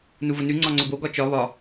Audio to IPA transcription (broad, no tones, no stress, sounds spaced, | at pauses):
n u v ʊ n ʉ ŋ͡ǀ ɒ ŋ͡ǀ ʊ b o ɡ ɒ t͡ʃ ɒ β ɒ